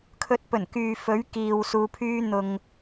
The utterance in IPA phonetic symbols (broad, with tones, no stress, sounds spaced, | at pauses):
kʰ ɵ˨˥ t̚ p ɵ˨˩ n k yː˨ f ɵ˨˥ ɥ k iː˨ w s uː˨˧ pʰ yː˥ n̪ ʊ˧ ŋ